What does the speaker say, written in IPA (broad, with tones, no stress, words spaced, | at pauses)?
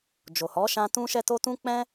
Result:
d͡ʒo˨hɔ˨˦ʃã˧ tũ˦ʃɛ˦to˦ tũ˦k͡pɛ̃˦